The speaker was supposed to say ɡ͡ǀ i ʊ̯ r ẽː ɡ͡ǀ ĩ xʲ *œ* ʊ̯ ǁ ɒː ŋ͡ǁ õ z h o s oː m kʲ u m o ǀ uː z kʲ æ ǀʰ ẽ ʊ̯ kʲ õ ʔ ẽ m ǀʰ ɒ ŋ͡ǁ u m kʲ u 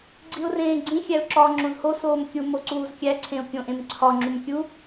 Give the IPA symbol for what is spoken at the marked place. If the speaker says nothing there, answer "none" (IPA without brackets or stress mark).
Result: æ